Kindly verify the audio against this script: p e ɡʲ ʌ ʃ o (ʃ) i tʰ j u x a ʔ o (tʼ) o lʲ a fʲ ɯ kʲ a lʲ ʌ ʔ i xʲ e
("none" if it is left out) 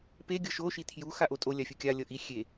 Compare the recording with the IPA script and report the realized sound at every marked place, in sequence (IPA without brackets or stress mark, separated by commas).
ʃ, tʼ